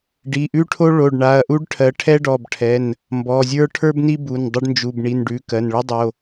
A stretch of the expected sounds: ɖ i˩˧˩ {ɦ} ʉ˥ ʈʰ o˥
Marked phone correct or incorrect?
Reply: incorrect